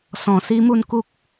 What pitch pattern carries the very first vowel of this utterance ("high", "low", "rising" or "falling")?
low